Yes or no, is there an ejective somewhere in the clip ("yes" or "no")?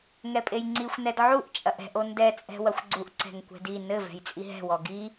yes